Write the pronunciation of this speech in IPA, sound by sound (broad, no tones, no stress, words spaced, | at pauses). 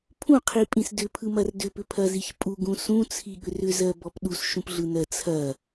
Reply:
pʰũqʰipʼĩs dʏpʰɯmɐr dʏpʏpʰɐziç pʼuɡũ sũt͡sʰiɠʏr ʏzɜbɔp ɗusʃũpɮɯnɜ t͡sʰɐ